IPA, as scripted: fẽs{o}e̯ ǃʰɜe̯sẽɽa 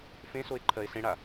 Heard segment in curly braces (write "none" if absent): o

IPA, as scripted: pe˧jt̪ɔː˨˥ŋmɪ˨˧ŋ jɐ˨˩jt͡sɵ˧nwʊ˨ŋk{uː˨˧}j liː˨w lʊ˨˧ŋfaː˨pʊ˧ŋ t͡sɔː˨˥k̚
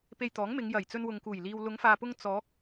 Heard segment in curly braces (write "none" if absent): uː˨˩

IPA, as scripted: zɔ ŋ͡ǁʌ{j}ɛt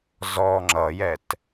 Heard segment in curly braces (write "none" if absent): j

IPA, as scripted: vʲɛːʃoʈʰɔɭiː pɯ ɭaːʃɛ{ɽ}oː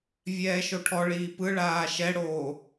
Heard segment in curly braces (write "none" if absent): ɽ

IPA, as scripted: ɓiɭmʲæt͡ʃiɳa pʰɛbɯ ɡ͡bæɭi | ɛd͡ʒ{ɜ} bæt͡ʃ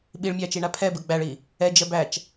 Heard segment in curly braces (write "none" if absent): ɜ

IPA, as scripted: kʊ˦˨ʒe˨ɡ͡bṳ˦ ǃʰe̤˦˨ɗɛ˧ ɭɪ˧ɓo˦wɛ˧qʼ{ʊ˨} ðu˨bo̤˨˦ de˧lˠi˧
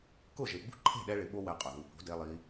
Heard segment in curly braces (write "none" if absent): ʊ˨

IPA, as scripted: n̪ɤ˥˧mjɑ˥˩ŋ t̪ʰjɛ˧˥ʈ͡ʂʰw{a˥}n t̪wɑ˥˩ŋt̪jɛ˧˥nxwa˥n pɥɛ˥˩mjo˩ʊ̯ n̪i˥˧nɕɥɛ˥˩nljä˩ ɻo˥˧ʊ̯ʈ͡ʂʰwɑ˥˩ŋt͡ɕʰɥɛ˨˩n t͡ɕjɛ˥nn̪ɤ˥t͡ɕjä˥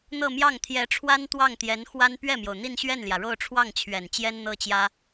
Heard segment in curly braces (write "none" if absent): a˥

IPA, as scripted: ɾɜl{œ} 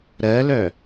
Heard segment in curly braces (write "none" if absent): œ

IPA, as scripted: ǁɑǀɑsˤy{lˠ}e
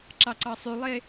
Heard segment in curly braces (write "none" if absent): lˠ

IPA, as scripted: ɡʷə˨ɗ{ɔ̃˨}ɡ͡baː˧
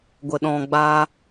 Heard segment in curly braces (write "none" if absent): ɔ̃˨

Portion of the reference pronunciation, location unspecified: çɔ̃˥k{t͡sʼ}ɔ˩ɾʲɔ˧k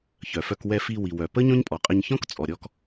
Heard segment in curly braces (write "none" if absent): t͡sʼ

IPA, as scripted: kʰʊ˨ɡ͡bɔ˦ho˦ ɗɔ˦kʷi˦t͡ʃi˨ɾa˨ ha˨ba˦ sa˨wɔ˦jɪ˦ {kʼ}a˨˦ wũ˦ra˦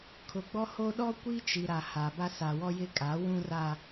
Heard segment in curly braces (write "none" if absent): kʼ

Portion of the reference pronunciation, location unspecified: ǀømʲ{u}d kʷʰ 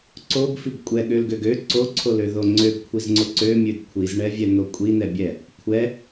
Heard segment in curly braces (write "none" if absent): ø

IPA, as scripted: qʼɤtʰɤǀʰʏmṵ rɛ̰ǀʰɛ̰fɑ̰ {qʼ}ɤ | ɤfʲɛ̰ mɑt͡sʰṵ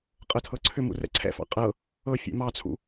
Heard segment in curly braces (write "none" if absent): qʼ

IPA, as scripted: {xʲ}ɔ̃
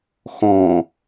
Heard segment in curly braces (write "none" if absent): x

